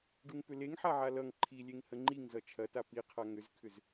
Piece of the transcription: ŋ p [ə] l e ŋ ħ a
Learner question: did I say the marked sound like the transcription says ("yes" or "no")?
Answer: no